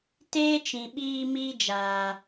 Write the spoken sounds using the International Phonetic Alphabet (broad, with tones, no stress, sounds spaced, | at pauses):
t eː˦ t͡ʃ ĩ˨ ɓ iː˧ m iː˧ d͡ʒ aː˨